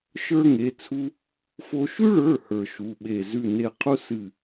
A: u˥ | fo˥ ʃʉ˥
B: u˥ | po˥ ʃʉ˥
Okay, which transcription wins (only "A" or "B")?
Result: A